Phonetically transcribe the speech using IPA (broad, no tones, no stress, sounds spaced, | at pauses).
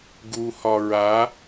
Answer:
ɡ u h ɒ ɹ a